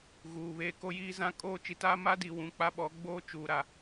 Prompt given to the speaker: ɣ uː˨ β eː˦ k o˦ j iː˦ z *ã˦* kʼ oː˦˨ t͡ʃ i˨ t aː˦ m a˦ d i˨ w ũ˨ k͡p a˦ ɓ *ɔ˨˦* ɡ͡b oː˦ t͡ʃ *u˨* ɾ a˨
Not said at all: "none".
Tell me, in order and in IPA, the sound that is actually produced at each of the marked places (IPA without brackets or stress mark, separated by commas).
ã˦, ɔ˨˦, uː˨